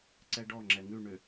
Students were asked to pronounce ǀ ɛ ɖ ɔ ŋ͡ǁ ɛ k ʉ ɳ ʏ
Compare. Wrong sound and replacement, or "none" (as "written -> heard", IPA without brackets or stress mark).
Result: k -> ŋ